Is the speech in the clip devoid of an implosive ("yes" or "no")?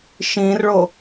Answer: yes